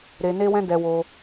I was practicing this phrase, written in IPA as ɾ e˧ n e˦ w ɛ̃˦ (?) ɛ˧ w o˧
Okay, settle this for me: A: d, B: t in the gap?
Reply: A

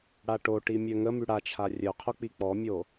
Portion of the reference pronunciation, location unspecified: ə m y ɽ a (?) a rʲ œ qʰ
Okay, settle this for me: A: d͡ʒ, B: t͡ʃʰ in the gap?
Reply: B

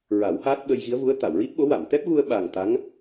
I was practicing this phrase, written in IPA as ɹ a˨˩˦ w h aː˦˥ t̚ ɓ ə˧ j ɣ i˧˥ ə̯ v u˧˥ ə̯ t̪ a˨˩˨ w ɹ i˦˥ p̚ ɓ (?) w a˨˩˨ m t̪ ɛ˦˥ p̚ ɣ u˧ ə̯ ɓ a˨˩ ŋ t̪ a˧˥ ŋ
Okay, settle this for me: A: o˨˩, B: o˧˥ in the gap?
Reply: B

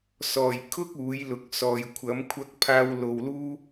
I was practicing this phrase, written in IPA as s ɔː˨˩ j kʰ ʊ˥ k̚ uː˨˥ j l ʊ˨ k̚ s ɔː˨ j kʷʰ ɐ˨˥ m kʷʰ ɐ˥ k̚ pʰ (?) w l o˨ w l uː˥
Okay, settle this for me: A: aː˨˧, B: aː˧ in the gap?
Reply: B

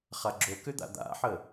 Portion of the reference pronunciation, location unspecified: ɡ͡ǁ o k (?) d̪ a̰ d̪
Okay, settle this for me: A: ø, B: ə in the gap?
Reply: A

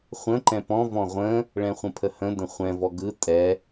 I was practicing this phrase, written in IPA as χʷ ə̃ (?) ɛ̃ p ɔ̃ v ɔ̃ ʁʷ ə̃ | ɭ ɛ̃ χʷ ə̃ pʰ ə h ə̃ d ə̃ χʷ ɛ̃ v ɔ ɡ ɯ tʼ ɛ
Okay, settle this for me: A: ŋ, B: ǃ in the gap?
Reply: B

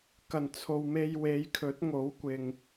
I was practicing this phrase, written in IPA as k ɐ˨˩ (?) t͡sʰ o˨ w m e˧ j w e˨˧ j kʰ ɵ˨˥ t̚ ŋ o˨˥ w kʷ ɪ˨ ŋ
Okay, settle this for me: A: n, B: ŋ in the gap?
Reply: A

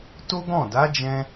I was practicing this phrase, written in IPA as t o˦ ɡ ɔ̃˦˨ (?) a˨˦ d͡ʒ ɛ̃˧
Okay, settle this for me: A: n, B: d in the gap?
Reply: B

